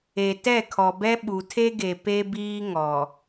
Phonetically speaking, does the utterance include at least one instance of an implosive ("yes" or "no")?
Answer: yes